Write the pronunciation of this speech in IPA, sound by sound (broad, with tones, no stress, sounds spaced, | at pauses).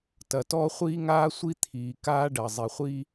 t ɐ˩ t ɔː˥ χʷ iː˥ ŋ aː˥ sʷ i˥ t̪ʰ iː˩ k aː˥ ɖ ɐ˩ zˤ i˩ χʷ i˥